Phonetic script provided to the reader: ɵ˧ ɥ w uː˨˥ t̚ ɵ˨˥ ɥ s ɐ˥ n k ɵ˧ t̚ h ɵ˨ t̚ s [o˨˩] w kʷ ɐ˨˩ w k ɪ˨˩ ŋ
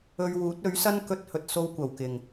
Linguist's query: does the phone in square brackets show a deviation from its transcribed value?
yes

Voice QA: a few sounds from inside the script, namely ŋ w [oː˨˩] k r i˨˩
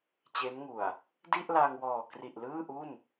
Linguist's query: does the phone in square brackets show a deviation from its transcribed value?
yes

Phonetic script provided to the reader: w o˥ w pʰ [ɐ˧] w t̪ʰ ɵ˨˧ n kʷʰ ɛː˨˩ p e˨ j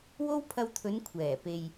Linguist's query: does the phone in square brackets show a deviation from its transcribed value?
no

